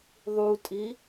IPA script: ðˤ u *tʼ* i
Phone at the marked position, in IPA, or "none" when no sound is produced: tʼ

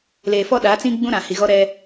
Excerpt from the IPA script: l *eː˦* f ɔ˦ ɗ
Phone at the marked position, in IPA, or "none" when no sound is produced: eː˨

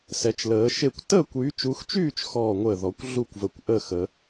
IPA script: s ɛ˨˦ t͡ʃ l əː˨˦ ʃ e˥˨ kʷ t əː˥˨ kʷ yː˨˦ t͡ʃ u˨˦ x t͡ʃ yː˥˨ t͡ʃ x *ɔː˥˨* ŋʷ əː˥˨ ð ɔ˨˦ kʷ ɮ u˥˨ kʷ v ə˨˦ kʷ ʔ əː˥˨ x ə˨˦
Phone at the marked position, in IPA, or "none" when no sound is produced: ɔː˥˨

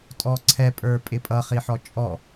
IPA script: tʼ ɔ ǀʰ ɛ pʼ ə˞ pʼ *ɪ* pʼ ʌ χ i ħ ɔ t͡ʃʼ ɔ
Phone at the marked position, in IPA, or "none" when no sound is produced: ɪ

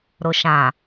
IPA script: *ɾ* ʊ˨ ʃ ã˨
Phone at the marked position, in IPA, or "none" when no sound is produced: ɾ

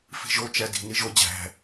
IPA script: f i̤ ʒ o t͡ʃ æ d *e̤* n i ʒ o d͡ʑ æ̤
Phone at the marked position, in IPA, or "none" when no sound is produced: i̤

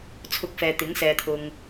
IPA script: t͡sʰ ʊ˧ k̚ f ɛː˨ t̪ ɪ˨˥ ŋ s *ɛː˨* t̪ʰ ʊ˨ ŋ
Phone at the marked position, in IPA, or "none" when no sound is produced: ɛː˨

